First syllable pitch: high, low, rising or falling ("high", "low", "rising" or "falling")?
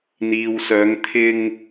low